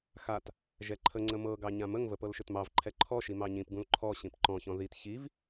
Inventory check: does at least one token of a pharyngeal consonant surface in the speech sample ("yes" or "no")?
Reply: no